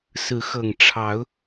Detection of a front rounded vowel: absent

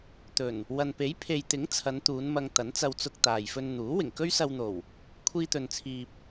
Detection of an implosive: absent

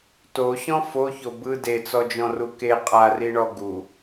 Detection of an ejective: present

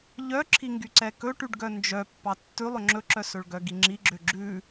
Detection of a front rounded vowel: present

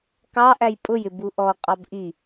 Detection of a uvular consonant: present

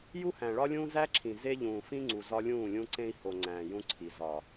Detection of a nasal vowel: present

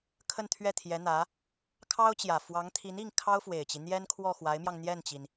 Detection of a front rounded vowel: absent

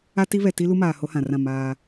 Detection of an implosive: absent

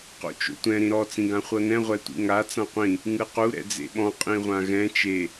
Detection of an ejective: present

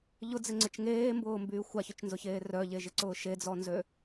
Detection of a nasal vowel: absent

